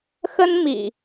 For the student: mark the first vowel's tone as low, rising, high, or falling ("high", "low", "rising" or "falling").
high